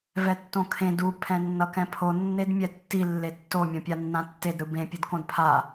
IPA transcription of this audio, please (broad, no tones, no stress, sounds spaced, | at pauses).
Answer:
v ɛ tː õ kʰ ẽ d u pʰ ɛ̃ nː ʌ k ɛ̃ pʰ o nː e d mʲ ɛ tː i lː e tː o mʲ õ pʲ a nː ã tː e d ɾ ɯ b ẽ pʲ ɯ d k õ d pʰ a